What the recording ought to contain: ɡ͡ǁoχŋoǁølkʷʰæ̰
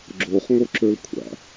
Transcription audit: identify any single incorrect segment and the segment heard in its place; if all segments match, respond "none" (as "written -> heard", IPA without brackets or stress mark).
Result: none